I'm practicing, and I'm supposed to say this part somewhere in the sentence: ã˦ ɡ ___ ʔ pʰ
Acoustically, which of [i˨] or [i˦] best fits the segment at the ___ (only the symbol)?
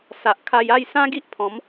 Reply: i˦